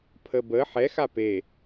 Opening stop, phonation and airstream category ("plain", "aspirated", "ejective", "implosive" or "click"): aspirated